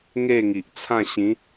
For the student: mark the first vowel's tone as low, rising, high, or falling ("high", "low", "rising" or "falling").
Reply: falling